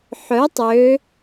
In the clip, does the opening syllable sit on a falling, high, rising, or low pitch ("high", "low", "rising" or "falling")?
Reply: rising